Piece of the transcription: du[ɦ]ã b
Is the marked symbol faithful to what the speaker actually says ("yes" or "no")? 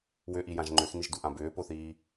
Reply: no